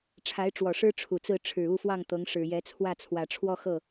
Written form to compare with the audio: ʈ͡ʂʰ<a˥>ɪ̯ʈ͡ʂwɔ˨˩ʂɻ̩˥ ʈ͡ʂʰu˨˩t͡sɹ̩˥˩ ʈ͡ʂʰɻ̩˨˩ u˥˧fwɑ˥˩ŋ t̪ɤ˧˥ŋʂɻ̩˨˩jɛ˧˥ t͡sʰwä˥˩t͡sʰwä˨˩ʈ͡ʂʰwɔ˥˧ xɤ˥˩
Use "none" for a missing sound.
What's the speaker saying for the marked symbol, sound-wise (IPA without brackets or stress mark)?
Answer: a˧˥